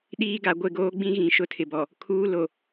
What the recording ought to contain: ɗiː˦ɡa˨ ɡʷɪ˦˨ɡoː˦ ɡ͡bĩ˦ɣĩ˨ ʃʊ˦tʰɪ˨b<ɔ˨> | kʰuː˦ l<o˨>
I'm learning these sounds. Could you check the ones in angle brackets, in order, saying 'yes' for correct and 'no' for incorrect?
yes, yes

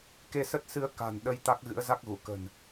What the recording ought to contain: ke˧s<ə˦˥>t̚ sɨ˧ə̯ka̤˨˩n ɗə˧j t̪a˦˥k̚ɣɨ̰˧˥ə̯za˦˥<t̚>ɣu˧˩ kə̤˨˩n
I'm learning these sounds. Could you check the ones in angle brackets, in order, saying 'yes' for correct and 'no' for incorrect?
yes, no

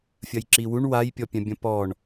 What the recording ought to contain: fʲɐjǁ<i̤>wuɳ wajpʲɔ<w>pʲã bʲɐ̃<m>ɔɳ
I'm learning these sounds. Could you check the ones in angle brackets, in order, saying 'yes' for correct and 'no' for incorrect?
no, no, no

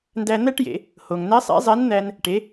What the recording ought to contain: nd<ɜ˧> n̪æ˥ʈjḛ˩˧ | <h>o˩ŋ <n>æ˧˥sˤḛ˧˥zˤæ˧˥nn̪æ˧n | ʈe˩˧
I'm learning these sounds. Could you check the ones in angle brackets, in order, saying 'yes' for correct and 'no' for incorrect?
no, yes, yes

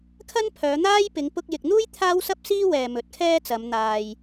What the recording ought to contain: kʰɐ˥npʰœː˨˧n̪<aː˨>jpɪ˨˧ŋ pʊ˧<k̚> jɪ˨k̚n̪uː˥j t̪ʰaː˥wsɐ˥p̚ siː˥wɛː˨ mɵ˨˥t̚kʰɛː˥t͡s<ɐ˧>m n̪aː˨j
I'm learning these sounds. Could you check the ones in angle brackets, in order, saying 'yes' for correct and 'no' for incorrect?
no, yes, no

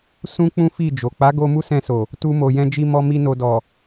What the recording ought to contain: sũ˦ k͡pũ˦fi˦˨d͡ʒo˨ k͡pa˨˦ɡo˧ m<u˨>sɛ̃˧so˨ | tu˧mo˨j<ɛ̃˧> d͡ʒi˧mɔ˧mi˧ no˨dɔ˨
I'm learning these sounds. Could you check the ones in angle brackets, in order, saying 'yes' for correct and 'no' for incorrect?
no, yes

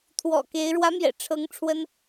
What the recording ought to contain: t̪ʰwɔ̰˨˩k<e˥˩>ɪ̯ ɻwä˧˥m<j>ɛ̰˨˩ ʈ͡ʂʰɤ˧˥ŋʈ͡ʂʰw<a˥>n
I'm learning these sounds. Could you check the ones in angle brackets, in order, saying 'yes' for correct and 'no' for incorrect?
no, yes, no

